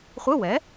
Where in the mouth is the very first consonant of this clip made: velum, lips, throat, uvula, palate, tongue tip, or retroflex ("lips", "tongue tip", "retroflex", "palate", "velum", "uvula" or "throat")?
uvula